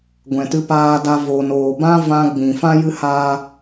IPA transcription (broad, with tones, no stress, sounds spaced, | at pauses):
ɡʷ ɛ̃˨ t ɨ˧ p aː˧ d a˧ v o˨ n oː˨ b ã˦ v ã˧ ɡ͡b ĩ˨ f ã˦ j ɨ˦ h aː˦